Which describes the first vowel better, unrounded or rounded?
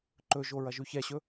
rounded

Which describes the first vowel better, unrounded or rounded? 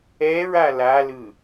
unrounded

